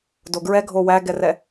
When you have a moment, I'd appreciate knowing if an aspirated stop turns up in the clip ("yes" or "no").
no